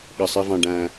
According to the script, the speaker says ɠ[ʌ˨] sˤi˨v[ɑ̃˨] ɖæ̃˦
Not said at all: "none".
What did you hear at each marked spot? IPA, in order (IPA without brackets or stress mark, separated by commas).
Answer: ʌ˨, ɑ̃˨